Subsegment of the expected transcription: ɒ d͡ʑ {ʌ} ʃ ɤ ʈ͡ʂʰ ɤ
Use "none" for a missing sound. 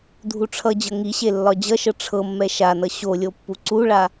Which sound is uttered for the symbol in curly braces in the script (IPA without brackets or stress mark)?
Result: ʌ